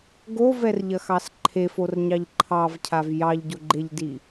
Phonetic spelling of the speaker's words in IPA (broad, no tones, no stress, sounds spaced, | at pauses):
ɡ o v ɛ r ʎ ɐ x ɑ s ǃʰ e f o r ɲ ɑ ʎ ǃʰ ɑ v cʰ a v j ɑ ʎ ɟ o ɡ͡ǃ e ʎ d i